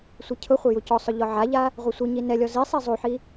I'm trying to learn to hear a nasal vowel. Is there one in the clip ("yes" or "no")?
no